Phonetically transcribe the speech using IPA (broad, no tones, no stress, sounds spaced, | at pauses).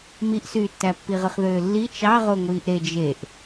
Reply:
m i ʔ s yː tː æ pː i ʁ ɯ χ ð øː lː i t͡ʃ ɑ ʁ o ŋʷ iː ʔ ɾ e d͡ʒ e ʔ